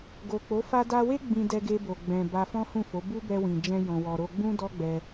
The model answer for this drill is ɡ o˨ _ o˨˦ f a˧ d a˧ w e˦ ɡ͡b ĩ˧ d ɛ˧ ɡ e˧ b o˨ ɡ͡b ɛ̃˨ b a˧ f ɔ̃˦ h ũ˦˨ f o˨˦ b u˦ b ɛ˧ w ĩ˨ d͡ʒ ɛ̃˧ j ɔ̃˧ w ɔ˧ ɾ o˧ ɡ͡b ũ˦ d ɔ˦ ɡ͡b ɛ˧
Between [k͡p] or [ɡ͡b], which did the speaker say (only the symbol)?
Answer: k͡p